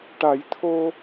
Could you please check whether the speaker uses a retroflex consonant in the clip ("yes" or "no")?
yes